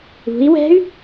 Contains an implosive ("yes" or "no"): no